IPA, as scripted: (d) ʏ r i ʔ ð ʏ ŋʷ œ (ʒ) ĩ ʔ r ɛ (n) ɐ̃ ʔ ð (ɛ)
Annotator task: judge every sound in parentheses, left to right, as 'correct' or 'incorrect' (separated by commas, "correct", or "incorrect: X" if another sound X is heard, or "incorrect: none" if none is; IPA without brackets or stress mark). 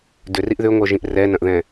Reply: correct, correct, correct, incorrect: ɛ̃